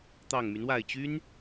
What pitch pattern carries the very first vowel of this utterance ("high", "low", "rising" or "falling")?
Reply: low